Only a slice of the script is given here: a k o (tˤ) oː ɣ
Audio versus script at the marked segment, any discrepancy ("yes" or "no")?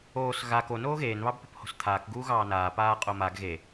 yes